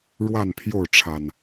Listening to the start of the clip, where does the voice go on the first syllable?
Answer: falling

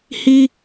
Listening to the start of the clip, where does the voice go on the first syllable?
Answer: high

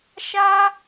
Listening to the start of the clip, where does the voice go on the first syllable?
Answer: high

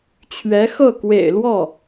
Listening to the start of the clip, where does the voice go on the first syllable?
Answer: rising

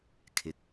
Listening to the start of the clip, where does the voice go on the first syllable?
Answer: low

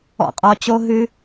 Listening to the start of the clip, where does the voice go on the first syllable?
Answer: low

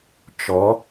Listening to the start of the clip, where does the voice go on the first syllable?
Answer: rising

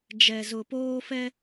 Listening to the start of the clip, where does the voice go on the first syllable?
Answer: low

